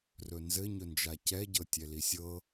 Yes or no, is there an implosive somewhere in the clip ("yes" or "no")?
no